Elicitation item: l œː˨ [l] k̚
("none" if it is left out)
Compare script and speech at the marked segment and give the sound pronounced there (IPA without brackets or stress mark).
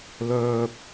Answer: none